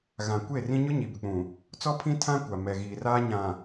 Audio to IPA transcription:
ɣã˨ kʷe˦˨ rĩ˦ ɲʊ˦ɲi˨bɪ˨k͡pũ˨ | t͡sɔ˦pʰĩ˦tʰã˦ kʷa˨mɛ˨ɣiː˨ raː˦ɲã˨

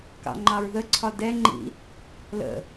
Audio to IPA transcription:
kɑ̰ŋ͡ǃɑɹðəǀʰɒ dɛŋ͡ǃḭ | lə̰

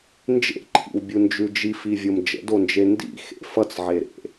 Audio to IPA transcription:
nd͡ʒḛǃʰḭwbʲund͡ʒʉ d͡ʒifivʲom d͡ʒə̰dond͡ʒe ndḭxḛ fʌt͡sʕeɾḛ

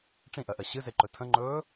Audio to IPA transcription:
ʈ͡ʂĩʔɜʔɜ ɕɨzeǃɵ tʰə̃ŋ͡ǃɵː

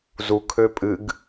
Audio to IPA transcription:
zukʰø pʼɨɡ

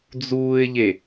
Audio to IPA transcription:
d͡zuːɪ̯ʎe

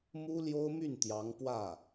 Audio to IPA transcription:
mu˥ljo˥ʊ̯my˥˩n t̪jɑ˧˥ŋpwä˥˩

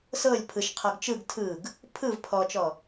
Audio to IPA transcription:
sɤlʲ pʰɯʃqʰɔɡ t͡ʃɯɡ tʰɯɡ | pʰɯv pʰɔt͡ʃɔ

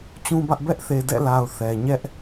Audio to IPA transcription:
t͡ɕũ˦bä˦ʔ bɛ˦ʔθe˨dɛ̰˦˨la˨ʊ̯ θɛ˨ ɲɛ˦ʔ

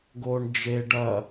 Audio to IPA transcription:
ɡoɳ d͡ʒe ɖɐ

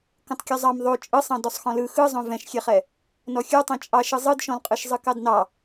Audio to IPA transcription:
kõtˤkʲozˤɑm ðˤo t͡ʃʼɯsˤɑ̃ dɔsˤxɔ̃lɯ xɯzˤõ vɛ̃ʃxʲeχɛ | nɔxʲə˞tˤẽ t͡ʃʼɑʃɯ zˤɯdʃɔ̃lqʼɯʃ zˤɯkɑdnɑ

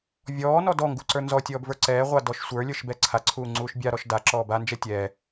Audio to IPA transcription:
vʲɔːnɔ dɔŋɡuǀə˞ nzɔtʲɔːbvə˞ ǀɛːʁʷadɔʃ sʷə˞lʲə˞ʃbɛ ǀʰaǀʰuːŋ͡ǀuːʃ bʲaɾɔʃ daǁɔː band͡ʒɛ tʲɛ

